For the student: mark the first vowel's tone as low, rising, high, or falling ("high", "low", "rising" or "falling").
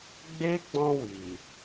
high